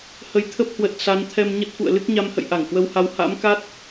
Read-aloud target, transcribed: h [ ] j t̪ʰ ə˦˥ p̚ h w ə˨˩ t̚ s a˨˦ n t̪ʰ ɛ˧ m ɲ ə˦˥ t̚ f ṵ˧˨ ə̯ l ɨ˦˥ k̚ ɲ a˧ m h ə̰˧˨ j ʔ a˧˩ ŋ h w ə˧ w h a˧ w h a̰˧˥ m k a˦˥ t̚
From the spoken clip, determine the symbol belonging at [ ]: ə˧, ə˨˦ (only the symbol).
ə˨˦